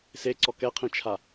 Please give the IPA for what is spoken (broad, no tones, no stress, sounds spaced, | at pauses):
s e ǀ ɔ k ɛ qʰ ĩ t͡ʃʰ a